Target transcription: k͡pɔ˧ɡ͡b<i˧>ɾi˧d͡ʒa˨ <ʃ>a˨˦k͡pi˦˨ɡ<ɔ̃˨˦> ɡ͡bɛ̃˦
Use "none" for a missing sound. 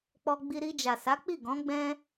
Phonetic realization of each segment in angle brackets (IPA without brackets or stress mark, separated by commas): i˧, s, ɔ̃˨˦